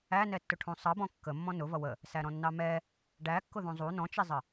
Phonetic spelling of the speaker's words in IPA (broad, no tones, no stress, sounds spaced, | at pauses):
æ n ɛ tː ʊ ʈʰ ũ sˤ ʌ b ɔ̃ kː ə mː ɔ̃ n ʊ v ʌ w ə | s æ ɾ ɔ̃ nː ɑ m ɛ | ɖ æ kː ʊ ð ũ zˤ u n ɔ̃ t͡ʃ i zˤ ə